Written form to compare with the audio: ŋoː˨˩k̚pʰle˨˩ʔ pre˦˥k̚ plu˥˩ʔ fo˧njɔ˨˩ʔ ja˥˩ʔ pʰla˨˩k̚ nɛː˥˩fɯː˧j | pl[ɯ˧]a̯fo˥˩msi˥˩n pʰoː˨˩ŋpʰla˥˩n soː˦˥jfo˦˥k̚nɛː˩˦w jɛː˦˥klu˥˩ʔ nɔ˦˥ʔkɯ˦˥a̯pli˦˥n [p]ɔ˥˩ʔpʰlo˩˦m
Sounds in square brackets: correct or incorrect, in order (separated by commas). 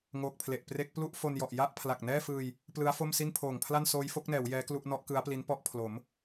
incorrect, correct